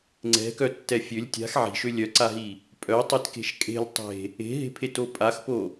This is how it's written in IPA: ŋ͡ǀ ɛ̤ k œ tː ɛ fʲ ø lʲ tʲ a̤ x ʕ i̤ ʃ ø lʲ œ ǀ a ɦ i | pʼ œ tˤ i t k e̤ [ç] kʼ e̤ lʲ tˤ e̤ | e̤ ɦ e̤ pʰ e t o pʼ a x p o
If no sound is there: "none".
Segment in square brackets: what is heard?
ʃ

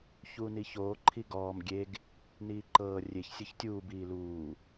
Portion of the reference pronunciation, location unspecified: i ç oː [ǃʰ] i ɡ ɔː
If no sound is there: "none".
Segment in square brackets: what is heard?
ǃʰ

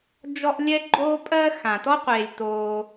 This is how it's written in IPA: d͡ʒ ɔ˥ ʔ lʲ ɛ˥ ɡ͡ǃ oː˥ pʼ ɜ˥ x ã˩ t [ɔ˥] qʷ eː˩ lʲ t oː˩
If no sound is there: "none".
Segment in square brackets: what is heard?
ɔ˥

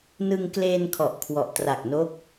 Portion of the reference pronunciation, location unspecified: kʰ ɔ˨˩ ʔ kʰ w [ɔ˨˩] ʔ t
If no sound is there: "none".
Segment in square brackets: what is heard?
ɔ˨˩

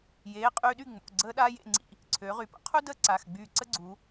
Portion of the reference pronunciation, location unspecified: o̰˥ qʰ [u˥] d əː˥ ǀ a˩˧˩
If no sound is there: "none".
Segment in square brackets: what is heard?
u˥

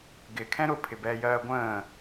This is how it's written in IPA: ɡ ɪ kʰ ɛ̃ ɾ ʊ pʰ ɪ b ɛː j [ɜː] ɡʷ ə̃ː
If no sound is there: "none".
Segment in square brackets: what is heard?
ɜː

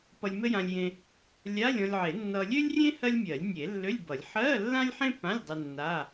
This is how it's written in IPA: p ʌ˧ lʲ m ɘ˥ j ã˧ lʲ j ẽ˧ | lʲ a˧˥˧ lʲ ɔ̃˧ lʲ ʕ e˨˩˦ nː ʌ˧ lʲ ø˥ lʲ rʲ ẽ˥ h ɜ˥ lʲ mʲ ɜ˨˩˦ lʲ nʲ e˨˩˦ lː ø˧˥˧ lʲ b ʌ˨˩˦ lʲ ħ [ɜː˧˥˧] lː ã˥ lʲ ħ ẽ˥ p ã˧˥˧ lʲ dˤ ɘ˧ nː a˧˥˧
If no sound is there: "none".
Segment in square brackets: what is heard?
ɜ˧˥˧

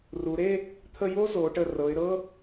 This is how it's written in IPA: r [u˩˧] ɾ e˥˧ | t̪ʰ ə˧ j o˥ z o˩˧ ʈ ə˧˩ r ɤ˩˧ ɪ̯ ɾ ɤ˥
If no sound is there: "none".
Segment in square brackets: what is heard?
u˩˧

